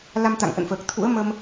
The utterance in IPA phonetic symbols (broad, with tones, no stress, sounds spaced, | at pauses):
l a˧ m t̪ a̰˧˨ ŋ ʔ ə̰˧˨ n f əː˨˩ k̚ t̪ʰ ṵ˧˥ ə̯ m ə˧ m